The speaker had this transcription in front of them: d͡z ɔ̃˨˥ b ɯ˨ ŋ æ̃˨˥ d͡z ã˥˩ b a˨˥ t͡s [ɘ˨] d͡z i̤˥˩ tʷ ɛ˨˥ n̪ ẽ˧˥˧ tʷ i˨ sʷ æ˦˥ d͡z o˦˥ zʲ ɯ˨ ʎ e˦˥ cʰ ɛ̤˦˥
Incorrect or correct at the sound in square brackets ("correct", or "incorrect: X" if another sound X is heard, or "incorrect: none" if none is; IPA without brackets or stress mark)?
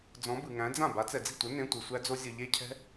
incorrect: ɛ˨